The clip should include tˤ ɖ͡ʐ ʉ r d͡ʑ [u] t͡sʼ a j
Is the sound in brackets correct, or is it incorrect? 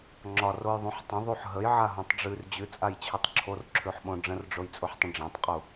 incorrect